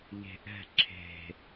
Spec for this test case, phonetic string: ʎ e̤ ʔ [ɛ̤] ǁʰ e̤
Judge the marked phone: correct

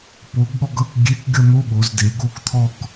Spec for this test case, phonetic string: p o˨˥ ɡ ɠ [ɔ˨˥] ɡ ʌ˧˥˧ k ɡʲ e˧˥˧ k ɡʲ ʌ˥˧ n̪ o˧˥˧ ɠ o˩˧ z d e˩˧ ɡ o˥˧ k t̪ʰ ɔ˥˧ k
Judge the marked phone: incorrect: ɔ˥˧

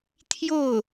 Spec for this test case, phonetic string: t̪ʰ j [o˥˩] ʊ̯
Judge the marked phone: correct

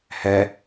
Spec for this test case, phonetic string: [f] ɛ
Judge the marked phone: incorrect: h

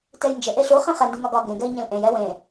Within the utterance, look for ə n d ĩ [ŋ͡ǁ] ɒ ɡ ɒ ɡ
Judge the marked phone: incorrect: ŋ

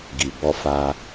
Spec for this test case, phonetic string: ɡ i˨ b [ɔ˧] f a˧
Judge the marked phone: correct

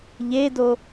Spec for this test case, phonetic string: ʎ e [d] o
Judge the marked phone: correct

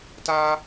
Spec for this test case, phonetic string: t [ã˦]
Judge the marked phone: incorrect: a˦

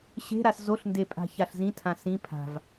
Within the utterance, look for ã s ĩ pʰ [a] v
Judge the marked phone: incorrect: a̤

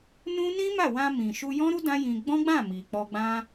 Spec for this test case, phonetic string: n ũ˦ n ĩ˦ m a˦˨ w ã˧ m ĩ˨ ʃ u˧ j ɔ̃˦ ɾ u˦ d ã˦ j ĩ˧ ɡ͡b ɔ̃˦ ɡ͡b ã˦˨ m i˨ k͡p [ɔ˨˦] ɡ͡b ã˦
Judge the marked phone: incorrect: ɔ˧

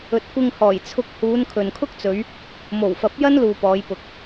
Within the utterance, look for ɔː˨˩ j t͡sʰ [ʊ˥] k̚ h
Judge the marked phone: incorrect: ʊ˧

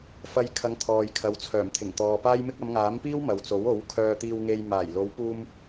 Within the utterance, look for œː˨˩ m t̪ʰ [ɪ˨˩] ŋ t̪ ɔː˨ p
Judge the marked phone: correct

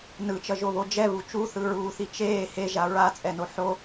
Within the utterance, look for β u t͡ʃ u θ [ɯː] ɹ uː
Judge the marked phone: incorrect: ɯ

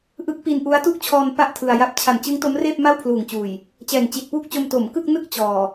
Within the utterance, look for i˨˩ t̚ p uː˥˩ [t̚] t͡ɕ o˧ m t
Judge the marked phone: incorrect: k̚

